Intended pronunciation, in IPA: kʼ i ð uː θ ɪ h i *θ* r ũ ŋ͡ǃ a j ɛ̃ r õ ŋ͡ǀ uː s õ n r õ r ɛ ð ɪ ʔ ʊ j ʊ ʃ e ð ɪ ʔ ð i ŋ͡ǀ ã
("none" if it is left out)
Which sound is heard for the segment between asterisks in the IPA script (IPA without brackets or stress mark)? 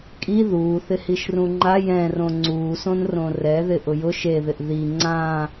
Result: ʃ